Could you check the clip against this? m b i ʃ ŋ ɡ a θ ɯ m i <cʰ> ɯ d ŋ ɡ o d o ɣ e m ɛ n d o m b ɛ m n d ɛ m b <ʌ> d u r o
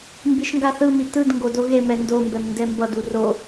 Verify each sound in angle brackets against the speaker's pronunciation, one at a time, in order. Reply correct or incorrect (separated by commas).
incorrect, correct